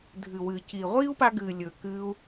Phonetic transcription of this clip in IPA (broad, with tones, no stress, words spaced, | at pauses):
dʱɨ˨wɨː˨ ci˨ʁʷiː˦u̯pa˧ɡɨː˨ lʲɵː˨ kɨː˧u̯